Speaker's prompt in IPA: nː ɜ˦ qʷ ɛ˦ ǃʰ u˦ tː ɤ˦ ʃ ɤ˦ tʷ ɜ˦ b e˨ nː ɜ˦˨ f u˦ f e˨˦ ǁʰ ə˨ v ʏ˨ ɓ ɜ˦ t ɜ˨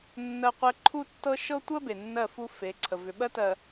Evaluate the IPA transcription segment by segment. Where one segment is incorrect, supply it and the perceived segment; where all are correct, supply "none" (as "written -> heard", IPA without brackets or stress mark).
ǁʰ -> ǀʰ